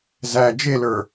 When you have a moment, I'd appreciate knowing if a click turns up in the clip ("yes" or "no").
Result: no